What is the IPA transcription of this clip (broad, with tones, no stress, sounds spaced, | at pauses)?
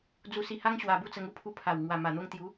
d͡z u˧ s i˧ h a˦ ŋ ɕ w a˧ b u˥˧ t͡s ə˧ ŋ u˥˧ pʰ u˧ pʰ a˨˩ w ŋ w a˨˩ m a˨˩ n̪ o˧ ŋ t̪ j u˨˦